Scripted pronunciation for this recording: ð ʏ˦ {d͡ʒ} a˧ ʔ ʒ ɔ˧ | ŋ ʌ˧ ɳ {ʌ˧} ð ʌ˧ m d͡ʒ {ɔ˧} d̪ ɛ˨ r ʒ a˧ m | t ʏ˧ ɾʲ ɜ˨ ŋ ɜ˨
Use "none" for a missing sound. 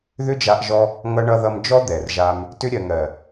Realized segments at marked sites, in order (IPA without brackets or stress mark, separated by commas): d͡ʒ, ʌ˧, ɔ˦